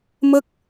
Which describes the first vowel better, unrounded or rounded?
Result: unrounded